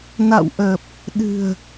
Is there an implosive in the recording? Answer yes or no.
yes